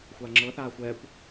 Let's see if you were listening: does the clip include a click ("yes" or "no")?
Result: yes